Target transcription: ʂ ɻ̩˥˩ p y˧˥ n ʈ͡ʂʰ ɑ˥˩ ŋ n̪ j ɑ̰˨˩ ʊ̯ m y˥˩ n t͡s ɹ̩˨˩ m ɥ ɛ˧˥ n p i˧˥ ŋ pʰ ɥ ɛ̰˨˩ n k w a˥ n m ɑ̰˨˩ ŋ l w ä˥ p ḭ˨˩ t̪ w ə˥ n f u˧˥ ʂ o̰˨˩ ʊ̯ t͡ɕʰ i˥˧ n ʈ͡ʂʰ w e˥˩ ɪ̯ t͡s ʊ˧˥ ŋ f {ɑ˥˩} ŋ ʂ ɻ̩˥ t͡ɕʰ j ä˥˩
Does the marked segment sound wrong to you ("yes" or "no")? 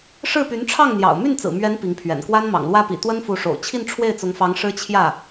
yes